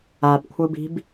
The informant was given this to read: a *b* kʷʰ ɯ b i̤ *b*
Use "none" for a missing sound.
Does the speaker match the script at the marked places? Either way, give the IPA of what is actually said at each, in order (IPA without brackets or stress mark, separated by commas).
b, b